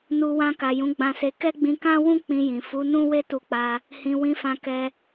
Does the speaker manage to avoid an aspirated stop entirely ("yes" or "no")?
yes